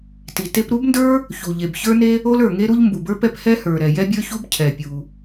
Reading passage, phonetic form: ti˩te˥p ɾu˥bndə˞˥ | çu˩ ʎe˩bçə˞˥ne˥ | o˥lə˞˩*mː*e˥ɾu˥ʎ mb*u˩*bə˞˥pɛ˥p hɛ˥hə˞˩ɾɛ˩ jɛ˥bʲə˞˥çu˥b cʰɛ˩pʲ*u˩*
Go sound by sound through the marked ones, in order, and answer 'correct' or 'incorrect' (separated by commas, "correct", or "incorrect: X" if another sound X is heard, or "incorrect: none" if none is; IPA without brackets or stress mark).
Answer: incorrect: ŋ, correct, correct